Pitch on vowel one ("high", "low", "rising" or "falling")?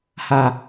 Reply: high